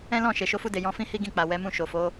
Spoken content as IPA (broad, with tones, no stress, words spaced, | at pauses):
ɛ̃˦lɔ̃˦˨ ʃe˨ʃo˧fu˧de˨ jɔ̃˧fĩ˦ hi˦ɡĩ˦˨k͡pa˨ wɛ˨˦mũ˦˨ ʃo˨fo˨˦